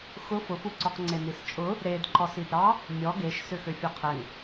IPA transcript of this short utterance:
x ʊ f ʊ f u ǀ ɔ q ŋ͡ǀ e n i s t͡ʃʼ ʊ | ɾ e d ǃ ɔ s i d ɾ ɑ | mʲ ɔ ɡ e ʃ s ʏ x ø fʲ ɔ qʰ ɛ ŋ

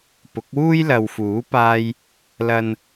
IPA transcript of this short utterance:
p ʊ˨˥ k̚ w uː˥ j l ɐ˨ w f uː˨˥ p aː˧ j | l ɐ˨ n

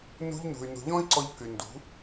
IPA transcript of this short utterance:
n ṳ˧ ʎ n ṳ˨ y̯ n ṳ˨ ʎ ɔ̃˦ i̯ ǀ ɔ˧ ʎ k y˨ n d ṳ˨˦

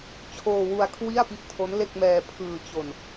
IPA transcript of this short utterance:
t͡ɕʰ oː˧ w u˧ a̯ kʰ w i˥˩ a̯ p i˦˥ ʔ tʰ o˦˥ n l e˥˩ k̚ m ɛː˧ pʰ ɯː˧ t͡ɕ o˧ n

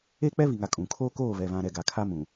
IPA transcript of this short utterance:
eː˦ k͡p ɛ˦ β i˨ ŋ a˨ kʼ ũ˨ kʰ oː˦ k oː˦˨ β ɛ˨ β ã˨ ɾ ɛ˨ ɡ a˨ kʰ a˦ m ũ˨

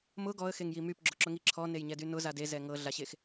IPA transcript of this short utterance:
m ʊ ɡ ɔ ə̯ x e ŋ j i m y p ɡ͡ǁ ʊ ǁ ʊ ŋ i ǁʰ ɔ n e j ɲ ɛ d y n ʊ z a d e z ɛ ŋ ɤ ɮ a ɕ e x

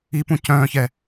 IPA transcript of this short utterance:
i p ũ c œ̃ ç ɛ

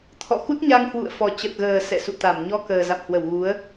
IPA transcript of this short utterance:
t̪ʰ ɔ̰˧˨ x u˦˥ t̚ ɲ a˧ ŋ h w ṵ˧˨ ə̯ f ɔ˨˩ t͡ɕ ə˨˩ t̚ ɣ əː˨˩ s ɛ̰˧˨ s ṵ˧˨ t̪ a˧˩ m ɲ ɔ˧ k əː˨˩ z a̰˧˨ m h w ə˧˩ w ɣ u˨˦ ə̯

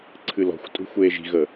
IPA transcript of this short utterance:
ǀʰ ɨ l ɔ̤ xʷ tʼ ṳ xʷ eː ʒ i̤ ɣ ə

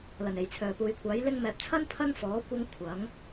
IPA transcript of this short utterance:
l ɐ˨˩ n e˨˩ j t͡sʰ œː˨˩ p uː˨ j kʷʰ aː˨˥ j l ɪ˧ ŋ m ɛː˨ p̚ t͡sʰ ɐ˥ n pʰ ɐ˥ n f ɔː˨˥ kʷ ɐ˥ ŋ kʷʰ ɐ˨˥ ŋ

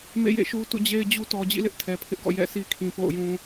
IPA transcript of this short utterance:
m ḛ˦˨ j ḛ˦˨ ʃ u˦ t ṵ˦˨ d͡ʑ e˦ ɪ̯ d͡ʑ u˦ t ɔ˨ d͡ʑ ḭ˦˨ l ɪ˦ ʔ tʰ ɛ˨ pʰ ɪ˦ ʔ ɡ ɔ̰˦˨ j ɛ̰˦˨ s i˦ kʰ ĩ˨ p o̰˦˨ ʊ̯ j ũ˦

